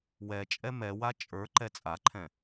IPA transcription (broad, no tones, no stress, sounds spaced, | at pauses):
w ɛ t͡ʃʼ ɛ m ɛ w a t͡ʃʼ ə˞ ǃ ɛ t͡sʼ a ǃʰ ɛ̃